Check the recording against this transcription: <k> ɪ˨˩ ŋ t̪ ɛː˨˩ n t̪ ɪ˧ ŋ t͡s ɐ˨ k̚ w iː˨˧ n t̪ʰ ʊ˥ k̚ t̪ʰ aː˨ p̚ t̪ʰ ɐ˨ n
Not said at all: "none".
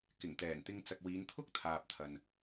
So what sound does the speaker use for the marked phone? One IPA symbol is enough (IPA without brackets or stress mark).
k